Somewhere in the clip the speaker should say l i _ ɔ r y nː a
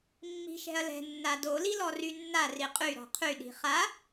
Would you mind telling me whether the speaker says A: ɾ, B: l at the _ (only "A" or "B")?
B